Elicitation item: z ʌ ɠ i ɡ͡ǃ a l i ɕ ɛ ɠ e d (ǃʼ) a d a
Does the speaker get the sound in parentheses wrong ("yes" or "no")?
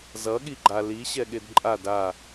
no